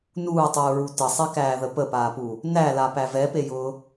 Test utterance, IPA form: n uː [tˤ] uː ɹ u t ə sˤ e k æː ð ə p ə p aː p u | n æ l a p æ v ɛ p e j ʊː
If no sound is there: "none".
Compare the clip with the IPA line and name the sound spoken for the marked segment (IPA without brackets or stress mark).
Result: tˤ